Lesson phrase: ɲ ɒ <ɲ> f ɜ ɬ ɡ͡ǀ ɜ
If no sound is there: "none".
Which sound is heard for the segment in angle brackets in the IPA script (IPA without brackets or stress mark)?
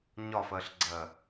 none